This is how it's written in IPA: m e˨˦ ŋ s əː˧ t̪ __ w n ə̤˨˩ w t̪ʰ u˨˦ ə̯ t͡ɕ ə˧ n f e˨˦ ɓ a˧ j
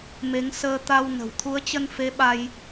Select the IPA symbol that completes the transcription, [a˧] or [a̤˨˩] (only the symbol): a˧